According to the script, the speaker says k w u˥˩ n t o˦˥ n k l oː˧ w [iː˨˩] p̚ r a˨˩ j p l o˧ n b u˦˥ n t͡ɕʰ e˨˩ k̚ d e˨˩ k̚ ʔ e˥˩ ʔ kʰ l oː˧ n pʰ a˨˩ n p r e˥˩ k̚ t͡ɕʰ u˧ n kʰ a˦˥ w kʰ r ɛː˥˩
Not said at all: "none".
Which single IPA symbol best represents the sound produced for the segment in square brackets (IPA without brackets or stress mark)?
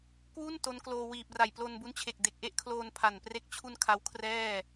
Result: iː˨˩